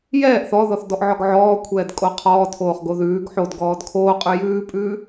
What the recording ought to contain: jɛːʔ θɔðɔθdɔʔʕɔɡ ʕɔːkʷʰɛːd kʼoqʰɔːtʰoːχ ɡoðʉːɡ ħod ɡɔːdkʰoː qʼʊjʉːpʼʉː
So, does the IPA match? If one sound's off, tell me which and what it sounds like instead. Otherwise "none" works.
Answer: ʊ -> ʉ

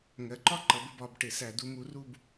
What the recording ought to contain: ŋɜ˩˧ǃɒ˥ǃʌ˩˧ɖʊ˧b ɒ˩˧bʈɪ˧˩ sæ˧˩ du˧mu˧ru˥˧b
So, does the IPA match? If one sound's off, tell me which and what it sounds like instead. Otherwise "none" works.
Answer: ɖ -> b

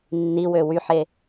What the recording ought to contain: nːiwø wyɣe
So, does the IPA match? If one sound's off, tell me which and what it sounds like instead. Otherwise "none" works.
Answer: ɣ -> ħ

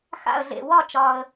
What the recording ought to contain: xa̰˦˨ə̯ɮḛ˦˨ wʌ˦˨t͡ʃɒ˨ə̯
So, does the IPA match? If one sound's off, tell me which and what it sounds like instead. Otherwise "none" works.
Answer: ʌ˦˨ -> ɒ˦˨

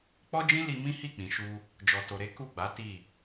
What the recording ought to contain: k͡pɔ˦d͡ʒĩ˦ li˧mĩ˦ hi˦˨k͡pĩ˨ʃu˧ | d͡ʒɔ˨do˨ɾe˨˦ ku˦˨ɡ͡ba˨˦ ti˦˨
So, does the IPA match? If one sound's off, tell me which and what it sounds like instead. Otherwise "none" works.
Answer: d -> t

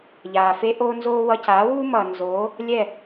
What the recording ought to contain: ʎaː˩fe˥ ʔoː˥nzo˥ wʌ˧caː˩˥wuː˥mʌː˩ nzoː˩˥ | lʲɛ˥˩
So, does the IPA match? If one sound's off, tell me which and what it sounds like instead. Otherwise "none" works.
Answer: o˥ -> oː˥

